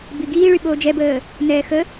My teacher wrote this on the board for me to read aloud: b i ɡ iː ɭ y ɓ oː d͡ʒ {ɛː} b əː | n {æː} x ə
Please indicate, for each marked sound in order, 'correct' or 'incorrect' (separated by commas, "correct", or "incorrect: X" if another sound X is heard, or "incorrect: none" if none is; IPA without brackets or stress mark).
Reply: incorrect: ɛ, incorrect: ɛː